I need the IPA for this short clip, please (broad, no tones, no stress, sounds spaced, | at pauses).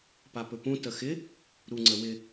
p a p ɵ p ũ t ə x ɪ | ɾ u ŋ͡ǀ ə w ɪ